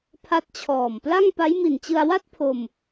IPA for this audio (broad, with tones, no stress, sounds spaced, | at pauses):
pʰ a˦˥ t̚ t͡ɕʰ ɔː˨˩ m p l a˥˩ ŋ p a˦˥ j m i˨˩ n t͡ɕ ɯ˧ a̯ w a˥˩ t̚ pʰ o˧ m